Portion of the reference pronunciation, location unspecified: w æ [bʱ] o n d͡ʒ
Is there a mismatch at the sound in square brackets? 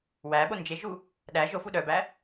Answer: yes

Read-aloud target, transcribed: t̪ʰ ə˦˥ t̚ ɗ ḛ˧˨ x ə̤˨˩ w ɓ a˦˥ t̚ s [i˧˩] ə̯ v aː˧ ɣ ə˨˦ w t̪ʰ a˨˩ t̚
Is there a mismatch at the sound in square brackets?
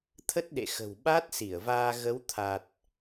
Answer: no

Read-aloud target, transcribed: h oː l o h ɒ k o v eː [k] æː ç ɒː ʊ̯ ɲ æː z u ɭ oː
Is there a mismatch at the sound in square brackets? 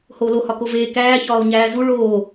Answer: no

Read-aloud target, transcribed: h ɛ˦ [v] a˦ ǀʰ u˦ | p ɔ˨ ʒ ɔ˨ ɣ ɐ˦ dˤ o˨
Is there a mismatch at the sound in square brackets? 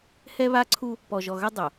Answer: yes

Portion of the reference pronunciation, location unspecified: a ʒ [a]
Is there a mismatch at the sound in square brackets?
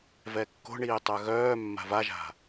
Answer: yes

